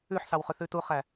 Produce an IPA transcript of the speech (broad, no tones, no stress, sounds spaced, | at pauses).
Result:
ʉ ħ s ɑ w χ ʉ θ ʉ t u χ æ